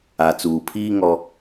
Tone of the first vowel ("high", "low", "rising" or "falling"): low